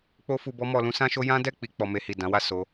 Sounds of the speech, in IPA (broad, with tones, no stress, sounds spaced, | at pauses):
k͡p o˦ f u˧ b ɔ˦ m ɔ˧ l ũ˦ s ã˦ ʃ o˦ j ã˦ d ɛ˦˨ k͡p i˨ k͡p ɔ˧ m e˦ h i˦˨ d ã˨˦ w a˦˨ s o˨˦